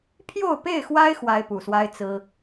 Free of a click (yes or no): yes